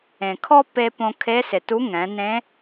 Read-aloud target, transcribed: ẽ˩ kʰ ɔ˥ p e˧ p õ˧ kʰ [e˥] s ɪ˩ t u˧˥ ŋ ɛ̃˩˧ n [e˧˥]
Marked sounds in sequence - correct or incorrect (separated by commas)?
incorrect, incorrect